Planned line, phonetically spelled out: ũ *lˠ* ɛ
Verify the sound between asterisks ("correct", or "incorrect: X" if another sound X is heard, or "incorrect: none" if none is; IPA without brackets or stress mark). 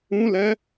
incorrect: l